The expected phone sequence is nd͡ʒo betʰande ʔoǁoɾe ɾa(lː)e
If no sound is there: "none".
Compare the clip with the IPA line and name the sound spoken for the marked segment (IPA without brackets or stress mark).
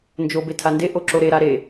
ɾ